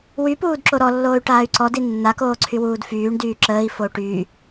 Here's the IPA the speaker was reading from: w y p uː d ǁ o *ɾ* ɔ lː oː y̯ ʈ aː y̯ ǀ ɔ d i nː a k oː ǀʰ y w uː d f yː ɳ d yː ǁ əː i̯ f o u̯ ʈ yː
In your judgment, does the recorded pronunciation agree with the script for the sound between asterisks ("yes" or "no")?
yes